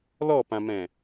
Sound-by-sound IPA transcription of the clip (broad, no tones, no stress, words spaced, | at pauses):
lɔpãmɛ̃